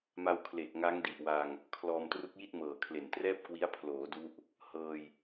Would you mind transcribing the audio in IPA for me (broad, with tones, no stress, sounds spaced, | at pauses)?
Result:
m a˧ w kʰ l e˨˩ k̚ ŋ a˦˥ ŋ d i˨˩ ʔ w a˧ ŋ | kʰ l ɔː˧ m t r u˦˥ k̚ j i˥˩ t̚ m ɤː˨˩ kʰ l e˨˩ n t r ɛː˥˩ p̚ k w i˦˥ a̯ pʰ l oː˩˦ d u˦˥ ʔ | h ɤː˧ j